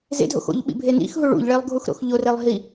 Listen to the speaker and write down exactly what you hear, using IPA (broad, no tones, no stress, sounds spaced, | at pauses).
z ḛ dʱ o̰ x o̰ ʎ ɓ ḭ bʱ e n ḭ x ɦ u ɭ ṵ ʎ ɭ e lˠ ɡʱ u x ɾ o̰ x ʎ o r e lˠ ɦ i